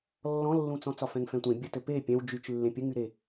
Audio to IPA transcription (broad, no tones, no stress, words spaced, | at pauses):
lːɔ̃lːũt͡sɔ̃ t͡sɒfɛ̃ŋfɛ̃tʷẽ bʲɘtɘ pe pʲɛ̃w d͡ʒyt͡ʃ lːẽpʲɘŋyɾe